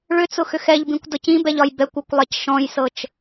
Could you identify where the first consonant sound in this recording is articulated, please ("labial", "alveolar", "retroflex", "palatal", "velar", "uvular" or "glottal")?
retroflex